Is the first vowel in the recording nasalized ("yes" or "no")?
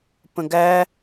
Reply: yes